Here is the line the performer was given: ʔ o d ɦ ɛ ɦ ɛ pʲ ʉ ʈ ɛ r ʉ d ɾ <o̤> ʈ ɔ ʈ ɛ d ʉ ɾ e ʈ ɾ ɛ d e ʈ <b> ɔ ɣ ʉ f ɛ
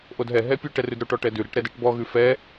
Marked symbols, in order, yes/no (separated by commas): no, yes